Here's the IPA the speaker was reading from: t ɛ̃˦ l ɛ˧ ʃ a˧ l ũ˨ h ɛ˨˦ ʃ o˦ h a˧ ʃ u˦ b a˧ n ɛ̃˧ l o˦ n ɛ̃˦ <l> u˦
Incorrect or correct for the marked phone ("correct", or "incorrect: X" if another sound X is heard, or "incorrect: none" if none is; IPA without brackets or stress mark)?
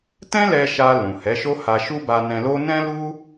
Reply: correct